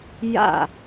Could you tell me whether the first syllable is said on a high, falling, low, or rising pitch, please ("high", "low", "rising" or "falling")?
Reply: falling